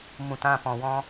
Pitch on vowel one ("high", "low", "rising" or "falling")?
low